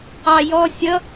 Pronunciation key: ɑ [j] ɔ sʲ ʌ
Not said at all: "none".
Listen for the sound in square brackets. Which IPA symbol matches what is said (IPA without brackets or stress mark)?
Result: j